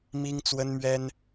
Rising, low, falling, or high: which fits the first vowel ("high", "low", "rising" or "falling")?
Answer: high